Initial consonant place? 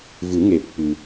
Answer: labial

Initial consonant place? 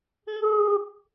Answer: velar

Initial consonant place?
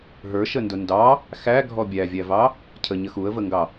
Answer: glottal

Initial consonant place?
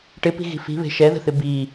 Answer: retroflex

